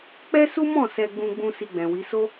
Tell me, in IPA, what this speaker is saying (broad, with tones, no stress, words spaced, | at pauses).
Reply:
k͡pɛ˦su˦mɔ̃˦˨ sɛ˧ɡ͡bũ˧ɡ͡bũ˧ si˧ɡ͡bɛ̃˨wi˨˦ so˦